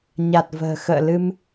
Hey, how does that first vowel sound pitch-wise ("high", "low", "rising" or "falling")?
low